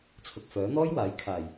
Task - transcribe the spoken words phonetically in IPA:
t͡sʰ ʊ˨ k̚ f œː˨˥ n̪ ɔː˥ j w aː˨˥ j kʰ aː˨˩ j

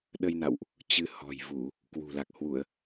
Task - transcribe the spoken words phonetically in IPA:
ɗ ə˧ j n a̰˧˨ w ʔ | t͡ɕ ɨ˧ h ɔ̤˨˩ j v u˧˩˨ | k w ṳ˨˩ l a˨˩ k̚ h w u˧˩˨ ə̯

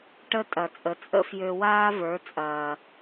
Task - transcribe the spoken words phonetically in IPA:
ʈ ə˦ tʼ ɐ˨ t͡sʼ ə˨ t͡sʼ ə̰˦ f j ø˧ w aː˦ v ə˞˨˦ t͡sʼ ɐː˨

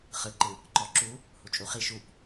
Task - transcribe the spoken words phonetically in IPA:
χ ɯ ǃ ɯ | ǃ ɔ ǁ u | h u t͡ʃʼ u χ i ʃ u p

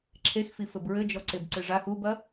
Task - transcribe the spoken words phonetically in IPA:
ǁʰ e x f i f ɘ b ɹ ɘ d͡ʒ ɔ ǀ e b ǀ ɨ ʐ a x u b ɐ

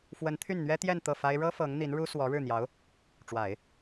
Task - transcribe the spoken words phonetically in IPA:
f w ə˧˥ n t̪ʰ y˥˩ n n̪ ɥ ɛ˥ t̪ j ɛ˥˧ n t̪ ɤ˥˩ f a˥ ɪ̯ ɻ ɤ˥ f ɤ˧˥ ŋ n̪ i˧˥ n ɻ u˥ s w ɔ˧˥ ɻ ɻ̩˥˩ n̪ j ɑ˧˥ ʊ̯ | ʈ͡ʂ w a˨˩˦ ɪ̯

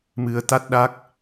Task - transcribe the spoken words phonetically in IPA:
m ɨ˧ ə̯ t̪ a˦˥ t̚ ɗ a˦˥ k̚

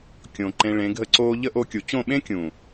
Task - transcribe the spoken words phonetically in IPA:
kʲ õ˨ ǃ ẽ˧ ɭ ẽ˨˦ ɡʱ ə˦ ǀ oː˦ ʎ ə˦ ʔ o˧ kʲ u˨ t͡ɕ õ˦˨ ɓ ẽ˦ kʲ ũ˨

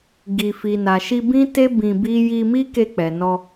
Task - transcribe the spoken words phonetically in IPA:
ɡ i˨ f i˨ n a˨ ʃ i˧ b ĩ˦ t e˦ b ĩ˧ b i˦ j i˧ m i˦ k e˧ k͡p ɛ˨ n ɔ˧

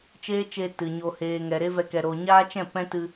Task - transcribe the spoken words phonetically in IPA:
t͡ʃ eː˦ t͡ʃ e˧ t ɨ˨ ɲ o˧ h eː˧ ŋ ɛ˨ ɾ e˦ v ɛ˧ k ɛ˨ ɾ o˨ ɲ aː˦ t͡ʃ ɛ̃˦˨ p ɛ̃˦ t ɨ˧

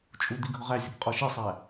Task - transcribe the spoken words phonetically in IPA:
t͡ʃʼ u d̪ i ɡʱ ʊ ʁ æ zʲ ɜ k qʼ ɔ ʃ i sˤ æ

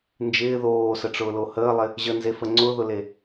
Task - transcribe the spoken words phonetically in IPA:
n d͡ʒ ɪː ð oː s ə ʈ͡ʂ ʊː l o h əː lˠ ɪ | ʑ ə n z e f ə ŋ͡ǀ ʊ ð ʊ l e

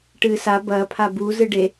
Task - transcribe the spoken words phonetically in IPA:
ʈ ɨː s a b ɐː pʰ a b u z ɨ ɖ e

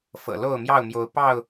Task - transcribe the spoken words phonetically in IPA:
f ɤ̰˨˩ l o˥˨ ʊ̯ m j ɑ˥˨ ʊ̯ m j o˨˦ ʊ̯ p ɑ˥˨ ʊ̯

